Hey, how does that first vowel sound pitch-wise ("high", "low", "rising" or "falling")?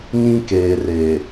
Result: high